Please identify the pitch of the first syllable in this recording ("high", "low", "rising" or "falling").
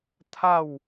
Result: falling